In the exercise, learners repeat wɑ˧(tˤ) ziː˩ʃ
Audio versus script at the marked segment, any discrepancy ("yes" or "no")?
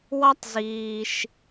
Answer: no